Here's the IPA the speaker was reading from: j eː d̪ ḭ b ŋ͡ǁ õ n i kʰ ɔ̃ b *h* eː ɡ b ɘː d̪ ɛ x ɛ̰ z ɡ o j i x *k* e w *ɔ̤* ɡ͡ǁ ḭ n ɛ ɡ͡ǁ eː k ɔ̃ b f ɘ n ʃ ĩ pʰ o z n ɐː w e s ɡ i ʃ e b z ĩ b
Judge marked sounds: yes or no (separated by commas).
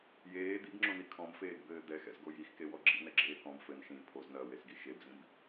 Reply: no, yes, no